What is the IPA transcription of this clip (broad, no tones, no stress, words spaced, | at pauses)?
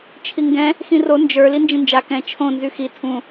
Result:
t͡ʃʰiŋɡɛ̃ | xĩro nd͡ʒə˞ lind͡ʒĩnd͡ʒa kɛ̃ t͡ʃʰõ nzyxi tʰũ